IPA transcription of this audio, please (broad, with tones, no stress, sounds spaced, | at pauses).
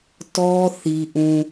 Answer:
t ɔ˦ θ i˦ ʔ ũ˦